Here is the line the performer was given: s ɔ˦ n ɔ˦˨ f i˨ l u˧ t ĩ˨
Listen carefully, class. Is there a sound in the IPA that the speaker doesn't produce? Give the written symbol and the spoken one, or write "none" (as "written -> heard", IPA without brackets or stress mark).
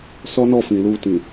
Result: i˨ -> ĩ˨